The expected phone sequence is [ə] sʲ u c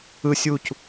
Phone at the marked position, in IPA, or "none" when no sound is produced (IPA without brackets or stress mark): ɯ